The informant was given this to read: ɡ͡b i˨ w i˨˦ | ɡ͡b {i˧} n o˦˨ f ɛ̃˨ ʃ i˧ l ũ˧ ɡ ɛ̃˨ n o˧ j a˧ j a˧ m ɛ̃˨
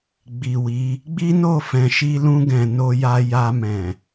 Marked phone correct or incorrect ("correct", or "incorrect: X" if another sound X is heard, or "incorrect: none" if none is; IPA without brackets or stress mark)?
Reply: incorrect: i˦